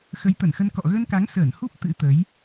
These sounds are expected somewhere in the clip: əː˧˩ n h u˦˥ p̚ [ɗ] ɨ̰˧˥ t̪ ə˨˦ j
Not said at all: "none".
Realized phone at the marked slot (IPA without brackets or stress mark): t̪